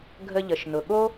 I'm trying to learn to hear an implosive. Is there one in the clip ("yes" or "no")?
yes